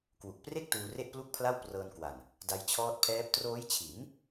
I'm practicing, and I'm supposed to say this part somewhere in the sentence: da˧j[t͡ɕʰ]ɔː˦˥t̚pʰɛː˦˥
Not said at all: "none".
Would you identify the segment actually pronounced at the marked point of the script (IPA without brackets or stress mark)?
t͡ɕʰ